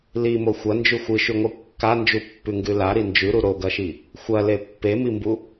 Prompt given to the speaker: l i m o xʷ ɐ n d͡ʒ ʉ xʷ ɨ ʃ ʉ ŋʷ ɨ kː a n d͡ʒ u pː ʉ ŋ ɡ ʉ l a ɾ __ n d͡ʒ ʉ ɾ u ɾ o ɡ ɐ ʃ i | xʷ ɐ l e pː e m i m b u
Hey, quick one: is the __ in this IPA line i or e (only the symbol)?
i